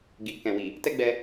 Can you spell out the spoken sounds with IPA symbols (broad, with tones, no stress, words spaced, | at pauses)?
ɡi˨ kɛ̃˨wi˨ | tɛ˦ɡ͡bɛ˧